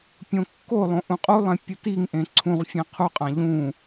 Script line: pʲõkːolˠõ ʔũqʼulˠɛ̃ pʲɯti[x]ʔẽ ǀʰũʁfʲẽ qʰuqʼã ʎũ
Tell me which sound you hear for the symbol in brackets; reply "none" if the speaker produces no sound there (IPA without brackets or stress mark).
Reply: ŋ